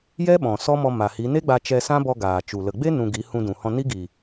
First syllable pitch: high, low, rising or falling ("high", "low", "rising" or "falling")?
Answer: high